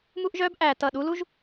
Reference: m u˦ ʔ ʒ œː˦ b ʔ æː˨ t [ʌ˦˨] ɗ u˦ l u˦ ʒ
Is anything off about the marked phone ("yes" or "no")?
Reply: no